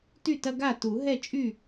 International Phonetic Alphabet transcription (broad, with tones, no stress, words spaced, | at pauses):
ty˥˩tɐ˦ɡa˥˩ tu˨˩˦ ɦɛ˥˩t͡ʃʼy˥˩